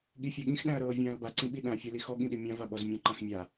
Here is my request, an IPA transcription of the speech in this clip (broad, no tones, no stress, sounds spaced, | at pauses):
ɠ i fʲ a ɠ ĩ x ɗ æ̃ ɐ̯ ɾ ɤː vʲ ãː l b a ǀ ĩ ɓ i ɗ ã fʲ æ l i x ɔ ɠ ĩ ɗ i mʲ ã v a ɓ ɔ z mʲ ɔ̃ ǃ ã x mʲ a